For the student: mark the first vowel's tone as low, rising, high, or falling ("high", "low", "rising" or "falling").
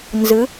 rising